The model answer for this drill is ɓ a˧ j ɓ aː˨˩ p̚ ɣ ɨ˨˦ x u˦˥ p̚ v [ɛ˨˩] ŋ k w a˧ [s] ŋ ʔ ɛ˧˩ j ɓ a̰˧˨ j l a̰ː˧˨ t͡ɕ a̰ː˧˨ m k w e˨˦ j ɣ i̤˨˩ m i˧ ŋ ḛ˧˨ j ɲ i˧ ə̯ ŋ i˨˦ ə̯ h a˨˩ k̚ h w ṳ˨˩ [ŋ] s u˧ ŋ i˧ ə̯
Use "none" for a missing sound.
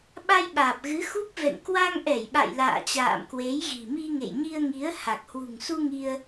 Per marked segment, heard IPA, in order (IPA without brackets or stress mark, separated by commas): ɛ̰˧˨, none, ŋ